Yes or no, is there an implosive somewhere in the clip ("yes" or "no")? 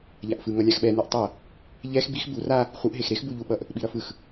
yes